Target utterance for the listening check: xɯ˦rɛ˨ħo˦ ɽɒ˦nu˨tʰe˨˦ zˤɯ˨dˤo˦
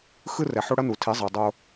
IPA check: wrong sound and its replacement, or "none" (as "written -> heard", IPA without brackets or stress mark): ɒ˦ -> ʌ˦